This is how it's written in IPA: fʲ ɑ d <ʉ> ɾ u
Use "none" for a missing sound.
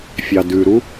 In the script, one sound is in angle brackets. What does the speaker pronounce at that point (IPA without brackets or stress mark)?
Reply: ʉ